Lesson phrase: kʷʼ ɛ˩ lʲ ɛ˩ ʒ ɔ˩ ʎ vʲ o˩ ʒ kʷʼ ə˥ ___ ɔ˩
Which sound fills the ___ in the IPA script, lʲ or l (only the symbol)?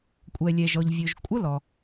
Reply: l